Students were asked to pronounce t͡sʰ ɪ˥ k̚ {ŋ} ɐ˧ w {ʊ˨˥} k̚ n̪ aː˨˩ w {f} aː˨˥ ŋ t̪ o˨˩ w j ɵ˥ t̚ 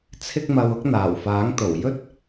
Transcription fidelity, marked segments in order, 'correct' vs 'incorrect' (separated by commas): incorrect, incorrect, correct